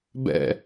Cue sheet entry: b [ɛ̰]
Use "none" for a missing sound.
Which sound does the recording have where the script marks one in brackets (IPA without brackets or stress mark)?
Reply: ɛ̰